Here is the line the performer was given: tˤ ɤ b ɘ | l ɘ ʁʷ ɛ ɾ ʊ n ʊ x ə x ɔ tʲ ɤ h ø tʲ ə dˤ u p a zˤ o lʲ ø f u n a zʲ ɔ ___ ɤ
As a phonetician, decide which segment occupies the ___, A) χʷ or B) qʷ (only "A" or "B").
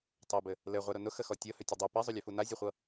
A